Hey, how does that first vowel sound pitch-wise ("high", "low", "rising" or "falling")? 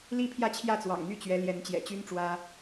falling